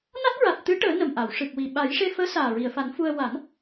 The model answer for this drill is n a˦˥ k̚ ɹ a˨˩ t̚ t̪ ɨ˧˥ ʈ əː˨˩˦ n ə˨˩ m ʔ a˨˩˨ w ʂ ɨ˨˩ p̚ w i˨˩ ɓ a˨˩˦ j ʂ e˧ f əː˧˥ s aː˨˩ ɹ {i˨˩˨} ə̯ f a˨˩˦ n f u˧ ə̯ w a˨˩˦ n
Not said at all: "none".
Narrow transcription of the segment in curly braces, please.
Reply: i˨˩˨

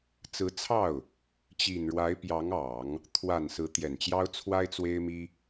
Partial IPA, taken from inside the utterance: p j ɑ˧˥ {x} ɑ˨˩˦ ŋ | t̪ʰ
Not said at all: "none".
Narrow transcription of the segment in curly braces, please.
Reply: ŋ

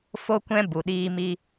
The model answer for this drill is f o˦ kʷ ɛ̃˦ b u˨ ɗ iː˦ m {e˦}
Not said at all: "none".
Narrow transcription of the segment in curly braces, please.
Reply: i˦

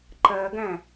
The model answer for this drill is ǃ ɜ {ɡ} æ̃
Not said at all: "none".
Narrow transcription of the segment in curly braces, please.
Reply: ɡ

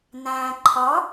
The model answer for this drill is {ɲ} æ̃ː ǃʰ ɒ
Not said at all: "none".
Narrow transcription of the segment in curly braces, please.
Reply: n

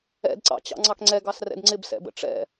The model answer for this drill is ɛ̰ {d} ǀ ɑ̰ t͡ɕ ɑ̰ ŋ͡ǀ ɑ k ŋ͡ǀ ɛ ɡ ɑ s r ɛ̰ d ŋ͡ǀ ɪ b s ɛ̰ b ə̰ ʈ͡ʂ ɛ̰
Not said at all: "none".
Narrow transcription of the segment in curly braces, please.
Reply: d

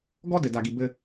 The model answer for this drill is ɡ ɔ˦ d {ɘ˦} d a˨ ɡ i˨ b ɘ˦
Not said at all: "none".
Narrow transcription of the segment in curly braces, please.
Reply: ɘ˨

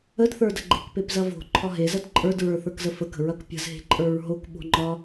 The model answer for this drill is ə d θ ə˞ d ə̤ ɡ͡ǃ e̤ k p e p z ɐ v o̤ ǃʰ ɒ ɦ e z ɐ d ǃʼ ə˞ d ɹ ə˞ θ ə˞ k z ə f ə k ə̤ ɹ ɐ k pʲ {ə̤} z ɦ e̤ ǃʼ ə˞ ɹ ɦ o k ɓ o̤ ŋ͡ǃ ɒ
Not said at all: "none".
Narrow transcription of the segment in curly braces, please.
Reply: ə̤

